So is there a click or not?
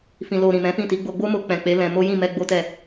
no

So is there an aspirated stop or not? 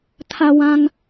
yes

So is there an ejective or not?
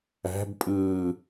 yes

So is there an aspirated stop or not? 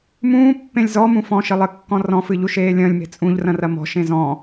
no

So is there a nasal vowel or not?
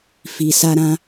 yes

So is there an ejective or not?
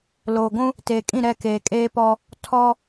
yes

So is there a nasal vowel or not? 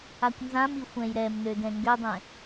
yes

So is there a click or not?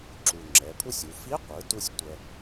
yes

